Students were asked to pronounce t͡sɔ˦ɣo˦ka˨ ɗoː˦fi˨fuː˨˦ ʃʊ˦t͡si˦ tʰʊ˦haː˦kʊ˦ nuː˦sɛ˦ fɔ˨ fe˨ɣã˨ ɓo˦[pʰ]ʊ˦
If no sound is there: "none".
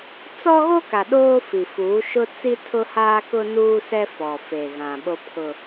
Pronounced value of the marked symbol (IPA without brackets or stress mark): pʰ